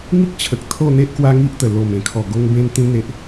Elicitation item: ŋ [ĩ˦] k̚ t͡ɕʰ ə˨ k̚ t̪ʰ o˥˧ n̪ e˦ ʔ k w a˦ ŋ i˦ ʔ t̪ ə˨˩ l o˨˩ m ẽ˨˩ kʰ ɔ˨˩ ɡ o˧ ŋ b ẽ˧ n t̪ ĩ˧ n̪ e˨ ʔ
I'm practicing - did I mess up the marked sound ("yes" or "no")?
yes